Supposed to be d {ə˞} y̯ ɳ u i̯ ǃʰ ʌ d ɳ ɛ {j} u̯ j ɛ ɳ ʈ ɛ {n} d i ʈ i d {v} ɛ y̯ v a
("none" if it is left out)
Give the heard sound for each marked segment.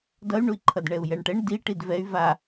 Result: ʌ, none, ɳ, v

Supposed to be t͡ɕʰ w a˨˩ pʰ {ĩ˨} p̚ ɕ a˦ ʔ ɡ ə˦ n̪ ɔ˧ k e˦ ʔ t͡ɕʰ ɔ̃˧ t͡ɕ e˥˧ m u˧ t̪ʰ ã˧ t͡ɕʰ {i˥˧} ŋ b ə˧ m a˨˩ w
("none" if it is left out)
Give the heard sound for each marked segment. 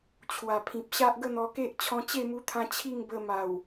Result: ĩ˨, i˥˧

